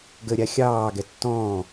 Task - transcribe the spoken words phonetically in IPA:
ɡ ə ɾʲ a xʲ ɑː ɡ ɛ tː ɔ̃ː

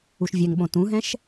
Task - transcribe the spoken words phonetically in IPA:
u ʃ vʲ ɛ ŋ ɓ õ t ũ ɦ ɛ̃ ʃ

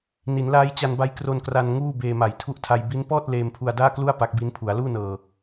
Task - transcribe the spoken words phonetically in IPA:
n i˩˦ n l aː˦˥ j t͡ɕ a˧ n b a˦˥ j k r o˧ n k r a˧ n ŋ uː˥˩ b eː˧ m a˨˩ j tʰ u˦˥ ʔ tʰ a˧ j b i˦˥ n p ɔː˥˩ t̚ l eː˧ m pʰ u˧ a̯ d aː˥˩ k l u˥˩ a̯ p a˦˥ k̚ b i˦˥ n pʰ u˩˦ a̯ l uː˥˩ n ɤː˧

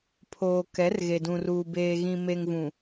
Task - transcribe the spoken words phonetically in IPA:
pʰ oː˨ k ɛ˨˦ r ɣ e˨ d ũ˨ r uː˨ b eː˨ ɣ ĩ˨ m e˨ ŋ v ũ˨

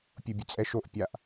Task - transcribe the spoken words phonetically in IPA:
pʲ u bʲ ə t͡sʼ ɛ ʃ o ʔ pʲ a ʔ

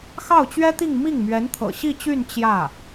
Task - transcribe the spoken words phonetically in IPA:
x ɑ˥˩ ʊ̯ t͡ɕ ɥ ɛ˥ t̪ i˥˧ ŋ m i˥˩ ŋ m ɥ ɛ˧˥ n t̪ʰ ɤ̰˨˩ ɕ i˥˧ t͡ɕ y˥˧ n t͡ɕ j ä˥˩

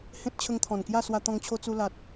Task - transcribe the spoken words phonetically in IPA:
h ẽ˦ t̚ t͡ɕʰ ə˧ ŋ t̪ʰ ɔ̃˨˩ n k j a˥˧ s w a˧ t̪ ɔ̃˧ ŋ t͡ɕʰ o˧ t͡s u˧ l a˨ t̚

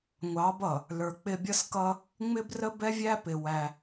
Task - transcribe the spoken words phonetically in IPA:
ŋʷ ɑ˨˦ b ʌ˨ | l ə˞˨ k͡p ɪ˦ bʲ ʌ˦ s k ʌ˦ | ŋ͡m ɪ˦ b r ə˦ b ɛ˦ vʲ æ˦ p ɪ˨ w æ˦

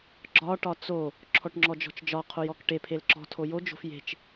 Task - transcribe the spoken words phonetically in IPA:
ɡ͡ǁ ɒ ʈ ɒ t͡s o | ǁʰ ɔ ʈ ŋ͡ǁ ɔ d͡ʒ ɔ̤ t͡ʃ d͡ʒ ɒ qʰ o j ɔ k ʈ e pʰ e l ǁ ɔ̤ tʰ o j o d͡ʒ o̤ f j e̤ t͡ʃ

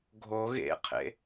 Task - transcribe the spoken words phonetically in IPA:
ɡʱ o ɣ ḛ qʰ ḛ

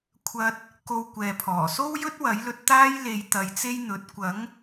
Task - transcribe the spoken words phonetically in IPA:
kʷʰ ɐ˧ t̚ | k o˧ w kʷ ɛː˨ pʰ ɔː˨˩ s o˥ w j ɵ˥ t̚ w ɐ˨˥ j l ɵ˧ t̚ t̪ aː˥ j l e˧ j t̪ ɐ˨˧ j t͡s e˥ j n̪ ɵ˨˥ t̚ kʷ ɐ˨˥ ŋ

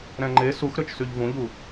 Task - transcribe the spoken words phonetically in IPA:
ɾ ɛ̃ ŋ͡ǃ e s u x ɾ ø t͡ʃ s y ʎ v ũ ʎ u

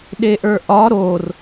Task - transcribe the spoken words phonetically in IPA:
ɗ e ʔ ə˞ ʔ ɒ ɾ o r

